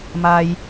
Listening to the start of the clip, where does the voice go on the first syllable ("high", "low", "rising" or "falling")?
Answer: high